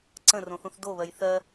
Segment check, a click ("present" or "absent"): present